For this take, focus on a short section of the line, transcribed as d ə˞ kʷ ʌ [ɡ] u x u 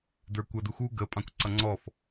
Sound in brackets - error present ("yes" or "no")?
yes